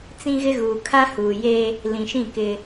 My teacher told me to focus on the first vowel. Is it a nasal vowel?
yes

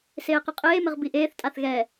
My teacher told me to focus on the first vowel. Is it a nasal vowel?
no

